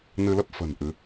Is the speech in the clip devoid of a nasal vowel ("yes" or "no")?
yes